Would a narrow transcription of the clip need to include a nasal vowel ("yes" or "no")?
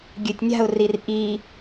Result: no